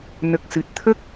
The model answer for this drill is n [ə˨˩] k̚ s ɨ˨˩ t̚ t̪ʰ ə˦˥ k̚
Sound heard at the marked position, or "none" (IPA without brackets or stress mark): ə˨˩